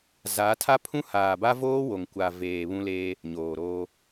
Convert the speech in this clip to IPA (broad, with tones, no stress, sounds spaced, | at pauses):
z a˨˦ tʰ a˦ pʰ ũ˦ h aː˨ b a˦ v oː˦ w o˨ ŋ kʷ a˨ v eː˨ β ũ˦ l eː˦ | ɲ oː˨ ɾ oː˦